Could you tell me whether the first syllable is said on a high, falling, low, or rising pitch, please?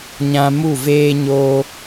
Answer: high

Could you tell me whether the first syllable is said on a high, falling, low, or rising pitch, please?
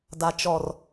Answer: low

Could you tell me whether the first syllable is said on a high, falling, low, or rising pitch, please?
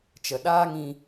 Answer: low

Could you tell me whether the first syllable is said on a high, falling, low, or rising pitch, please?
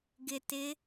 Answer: low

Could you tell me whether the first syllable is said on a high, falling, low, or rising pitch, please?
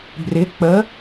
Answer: rising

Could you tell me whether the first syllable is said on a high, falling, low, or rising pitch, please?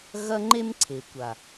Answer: high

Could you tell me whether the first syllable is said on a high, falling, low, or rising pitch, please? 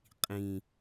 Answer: low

